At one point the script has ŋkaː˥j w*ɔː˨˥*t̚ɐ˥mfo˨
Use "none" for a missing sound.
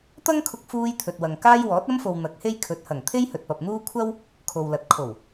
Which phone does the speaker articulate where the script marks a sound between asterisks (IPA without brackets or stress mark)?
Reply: ɔː˨˥